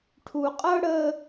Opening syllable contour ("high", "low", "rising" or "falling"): low